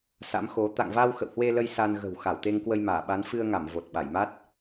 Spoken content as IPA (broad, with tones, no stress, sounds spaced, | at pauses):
s a̰˧˥ m x o˨˦ t̪ a̰˧˨ ŋ v a˧ w x ə̰˧˨ w h w e˧ l ə˧ j s a˧ n ɣ ə̤˨˩ w x a˧˩ w t̪ e˧ ŋ k w ə˧ j m aː˧˩ ɓ a˨˦ n f ɨ˧ ə̯ ŋ a˧˩ m v o˨˩ t̚ ɓ a˧˩ j m a˦˥ t̚